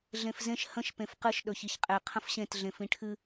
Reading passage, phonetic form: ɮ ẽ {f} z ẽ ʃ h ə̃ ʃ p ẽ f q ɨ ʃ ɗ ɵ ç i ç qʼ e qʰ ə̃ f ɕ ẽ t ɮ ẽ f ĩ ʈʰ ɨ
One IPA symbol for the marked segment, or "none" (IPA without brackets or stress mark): f